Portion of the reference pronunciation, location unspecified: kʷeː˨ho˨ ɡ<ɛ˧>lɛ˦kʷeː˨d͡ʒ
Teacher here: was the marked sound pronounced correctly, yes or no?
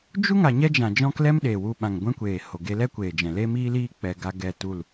no